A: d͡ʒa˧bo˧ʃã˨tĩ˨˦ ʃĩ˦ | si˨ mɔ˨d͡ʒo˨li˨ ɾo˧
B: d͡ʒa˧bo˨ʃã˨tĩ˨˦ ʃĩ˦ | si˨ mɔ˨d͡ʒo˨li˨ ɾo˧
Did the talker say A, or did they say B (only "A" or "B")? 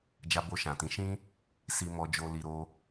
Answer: A